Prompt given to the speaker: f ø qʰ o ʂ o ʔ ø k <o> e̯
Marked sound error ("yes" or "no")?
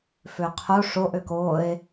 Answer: no